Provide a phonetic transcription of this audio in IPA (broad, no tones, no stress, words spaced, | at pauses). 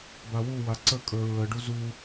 bawuwa ǀəkʼə˞ ɹəɖu zu